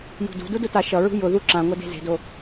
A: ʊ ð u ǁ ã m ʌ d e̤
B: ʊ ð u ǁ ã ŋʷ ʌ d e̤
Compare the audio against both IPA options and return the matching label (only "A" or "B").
B